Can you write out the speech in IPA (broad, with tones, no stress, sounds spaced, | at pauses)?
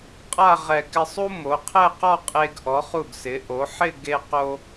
qʼ a˥˧ ʁ ɛ˧˩ k ɪ˧ sˤ u˥ m o˩˧ qʰ ɛ˥˧ q ɔ˥˧ qʼ e˧ ɡ ʔ ɔ˩˧ χ u˧˩ ɡ s ɪ˩˧ ʔ o˩˧ ħ ɪ˥˧ ɡ e˧ q o˧